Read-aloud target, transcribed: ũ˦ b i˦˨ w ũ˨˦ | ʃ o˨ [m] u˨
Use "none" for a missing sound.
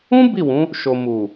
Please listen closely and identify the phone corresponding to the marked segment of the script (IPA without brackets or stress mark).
m